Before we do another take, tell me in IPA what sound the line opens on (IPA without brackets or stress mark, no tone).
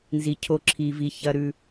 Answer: n